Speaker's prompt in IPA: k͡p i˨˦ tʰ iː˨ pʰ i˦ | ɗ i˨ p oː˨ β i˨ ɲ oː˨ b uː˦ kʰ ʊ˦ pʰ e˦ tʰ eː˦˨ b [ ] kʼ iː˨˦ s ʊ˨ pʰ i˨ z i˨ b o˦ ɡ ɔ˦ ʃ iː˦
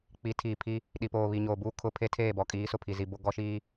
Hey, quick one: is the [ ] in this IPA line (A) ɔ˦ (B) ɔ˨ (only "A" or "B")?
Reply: B